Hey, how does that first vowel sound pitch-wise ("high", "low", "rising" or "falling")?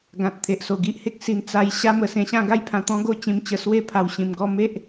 low